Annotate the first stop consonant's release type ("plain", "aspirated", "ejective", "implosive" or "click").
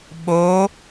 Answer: implosive